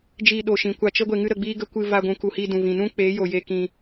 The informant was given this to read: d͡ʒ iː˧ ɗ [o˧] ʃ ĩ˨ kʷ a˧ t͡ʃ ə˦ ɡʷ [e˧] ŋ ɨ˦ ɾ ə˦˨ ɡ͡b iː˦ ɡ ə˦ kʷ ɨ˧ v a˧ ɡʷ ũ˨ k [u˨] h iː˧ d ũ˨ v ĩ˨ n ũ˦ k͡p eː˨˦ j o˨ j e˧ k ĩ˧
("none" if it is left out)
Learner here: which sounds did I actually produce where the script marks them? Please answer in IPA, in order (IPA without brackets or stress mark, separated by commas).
o˨, e˧, u˨